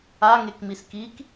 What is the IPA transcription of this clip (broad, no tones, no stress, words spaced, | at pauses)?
aŋekmis kik